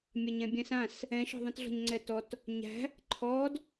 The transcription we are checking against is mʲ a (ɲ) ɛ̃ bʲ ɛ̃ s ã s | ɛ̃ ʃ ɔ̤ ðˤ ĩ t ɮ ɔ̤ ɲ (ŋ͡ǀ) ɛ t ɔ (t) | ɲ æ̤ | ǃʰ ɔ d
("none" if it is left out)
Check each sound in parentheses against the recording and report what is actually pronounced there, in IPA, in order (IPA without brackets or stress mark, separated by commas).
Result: ɲ, ŋ͡ǀ, t